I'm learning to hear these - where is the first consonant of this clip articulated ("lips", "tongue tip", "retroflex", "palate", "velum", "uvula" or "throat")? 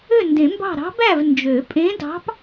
tongue tip